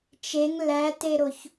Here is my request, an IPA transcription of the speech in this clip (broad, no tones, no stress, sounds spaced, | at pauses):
t͡ʃ e ŋ l æ t e ɾ o ç